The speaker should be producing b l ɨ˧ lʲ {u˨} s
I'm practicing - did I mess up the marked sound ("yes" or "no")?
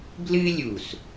no